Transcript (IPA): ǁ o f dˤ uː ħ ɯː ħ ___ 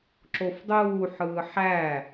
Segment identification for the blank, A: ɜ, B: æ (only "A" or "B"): B